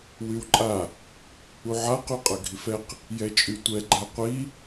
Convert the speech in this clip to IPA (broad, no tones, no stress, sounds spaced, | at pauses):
w y w ǃʼ a | u ʕ a q y qʼ ɐ ɡʱ i f ɛ q | j ɛ t͡ʃʼ y tʷ ɛ ɡ͡ǃ a qʷ i